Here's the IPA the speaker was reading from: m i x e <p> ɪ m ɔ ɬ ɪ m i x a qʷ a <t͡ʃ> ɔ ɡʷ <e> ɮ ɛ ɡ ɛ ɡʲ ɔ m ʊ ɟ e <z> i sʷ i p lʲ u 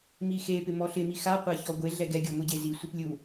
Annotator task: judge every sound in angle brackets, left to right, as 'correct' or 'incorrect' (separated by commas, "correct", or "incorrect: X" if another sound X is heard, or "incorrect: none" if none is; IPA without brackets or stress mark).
correct, incorrect: ç, correct, correct